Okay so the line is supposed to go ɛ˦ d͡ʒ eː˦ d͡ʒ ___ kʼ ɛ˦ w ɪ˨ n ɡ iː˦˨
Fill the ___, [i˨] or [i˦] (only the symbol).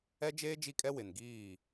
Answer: i˦